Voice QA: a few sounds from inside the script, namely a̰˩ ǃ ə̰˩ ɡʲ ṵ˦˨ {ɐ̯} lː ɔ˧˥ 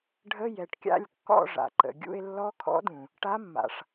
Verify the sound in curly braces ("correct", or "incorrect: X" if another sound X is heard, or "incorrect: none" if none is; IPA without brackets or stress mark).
incorrect: e̯